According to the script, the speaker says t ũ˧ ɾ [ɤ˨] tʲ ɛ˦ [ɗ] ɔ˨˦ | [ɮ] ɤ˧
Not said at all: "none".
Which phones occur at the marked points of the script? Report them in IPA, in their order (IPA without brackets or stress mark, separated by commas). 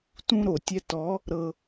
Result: o˨, t, ɾ